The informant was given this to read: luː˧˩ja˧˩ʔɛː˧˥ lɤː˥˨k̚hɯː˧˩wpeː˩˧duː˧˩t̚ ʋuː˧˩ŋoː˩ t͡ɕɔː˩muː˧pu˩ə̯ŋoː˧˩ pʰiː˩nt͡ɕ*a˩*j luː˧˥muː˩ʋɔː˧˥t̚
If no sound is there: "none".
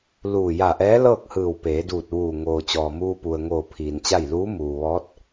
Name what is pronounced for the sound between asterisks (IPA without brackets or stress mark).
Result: a˥˨